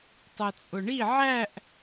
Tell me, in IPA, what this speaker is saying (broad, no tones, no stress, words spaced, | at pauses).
tˤɜt͡sʼʊɳi ʕæʔ